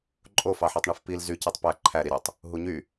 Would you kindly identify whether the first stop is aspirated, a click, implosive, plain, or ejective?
click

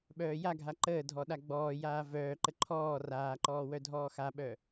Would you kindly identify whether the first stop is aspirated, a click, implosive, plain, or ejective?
implosive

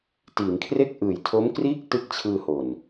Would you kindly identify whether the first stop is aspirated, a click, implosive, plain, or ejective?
plain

